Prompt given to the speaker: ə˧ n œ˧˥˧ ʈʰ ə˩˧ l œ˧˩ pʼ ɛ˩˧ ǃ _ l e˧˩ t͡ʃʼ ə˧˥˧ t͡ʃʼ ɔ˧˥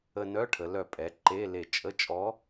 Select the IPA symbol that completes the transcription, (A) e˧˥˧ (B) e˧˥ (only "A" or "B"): A